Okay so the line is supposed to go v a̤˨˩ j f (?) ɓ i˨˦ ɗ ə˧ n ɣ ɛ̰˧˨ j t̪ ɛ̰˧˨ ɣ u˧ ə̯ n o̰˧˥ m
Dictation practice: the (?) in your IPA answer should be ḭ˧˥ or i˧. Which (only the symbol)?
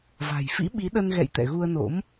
ḭ˧˥